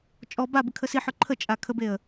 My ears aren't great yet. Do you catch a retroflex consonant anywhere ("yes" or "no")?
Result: no